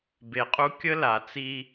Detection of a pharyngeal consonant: absent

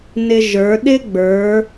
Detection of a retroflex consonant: absent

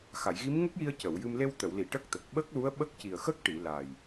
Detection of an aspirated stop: absent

